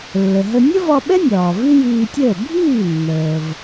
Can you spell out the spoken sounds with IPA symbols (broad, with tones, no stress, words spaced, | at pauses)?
lːə˩ɦə˧ nʲə˥vɒ˧ɓɛ˥ nʲɒː˩vi˥jiː˧tʲəː˥˩ bʱiː˥˩nːəː˩v